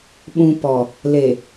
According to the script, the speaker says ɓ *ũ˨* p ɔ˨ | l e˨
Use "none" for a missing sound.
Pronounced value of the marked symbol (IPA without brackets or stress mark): ũ˨